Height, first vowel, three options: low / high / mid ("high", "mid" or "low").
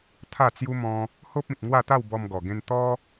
low